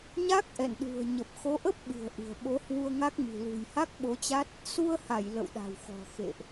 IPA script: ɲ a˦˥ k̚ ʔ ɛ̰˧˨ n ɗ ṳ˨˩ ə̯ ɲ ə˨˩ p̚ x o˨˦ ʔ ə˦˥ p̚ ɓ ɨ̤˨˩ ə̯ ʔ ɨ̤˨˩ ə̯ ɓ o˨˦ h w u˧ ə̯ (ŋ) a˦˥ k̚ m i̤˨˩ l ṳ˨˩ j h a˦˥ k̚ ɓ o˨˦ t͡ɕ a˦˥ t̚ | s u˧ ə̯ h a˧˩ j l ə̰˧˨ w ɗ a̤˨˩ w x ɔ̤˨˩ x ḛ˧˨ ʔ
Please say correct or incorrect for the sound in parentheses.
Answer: correct